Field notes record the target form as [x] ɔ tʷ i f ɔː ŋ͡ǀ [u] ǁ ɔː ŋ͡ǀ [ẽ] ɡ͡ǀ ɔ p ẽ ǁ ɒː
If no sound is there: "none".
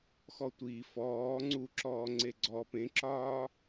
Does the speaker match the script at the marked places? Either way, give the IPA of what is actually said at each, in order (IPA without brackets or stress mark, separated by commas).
x, u, e